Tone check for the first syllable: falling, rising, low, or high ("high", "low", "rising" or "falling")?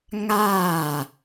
falling